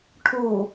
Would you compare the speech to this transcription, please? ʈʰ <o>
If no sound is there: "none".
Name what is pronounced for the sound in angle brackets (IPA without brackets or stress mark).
u